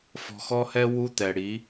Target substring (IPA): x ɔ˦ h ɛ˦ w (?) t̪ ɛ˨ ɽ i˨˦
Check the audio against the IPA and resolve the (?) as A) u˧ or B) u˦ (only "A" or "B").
B